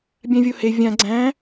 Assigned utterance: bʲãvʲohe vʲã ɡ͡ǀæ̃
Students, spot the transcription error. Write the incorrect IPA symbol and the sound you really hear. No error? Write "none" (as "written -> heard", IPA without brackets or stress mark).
none